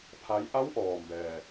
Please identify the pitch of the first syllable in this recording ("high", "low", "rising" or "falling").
rising